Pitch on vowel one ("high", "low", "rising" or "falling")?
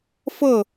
falling